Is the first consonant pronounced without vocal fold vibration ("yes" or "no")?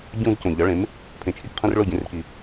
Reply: no